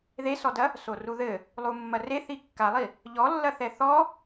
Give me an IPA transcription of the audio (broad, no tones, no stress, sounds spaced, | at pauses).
ð e s ɔ d ɐ | s o r u ð ɘ | lˠ u mː ɐ r e θ i kː a lˠ i | ʎ ɔ lː ɐ θ ɛ θ ɔ